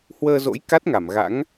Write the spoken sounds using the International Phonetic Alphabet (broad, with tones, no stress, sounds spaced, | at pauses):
h w əː˧ z o̰˧˥ j k a˦˥ t̚ ŋ a˧˩ m ɣ a̰˧˥ ŋ